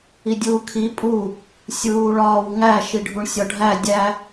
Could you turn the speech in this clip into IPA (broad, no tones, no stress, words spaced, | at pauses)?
idʲuːkʰi pʼu | sʲuːɭɒːwŋæ ʃiɖʱuɳsʲɒɖʱæ dʲæ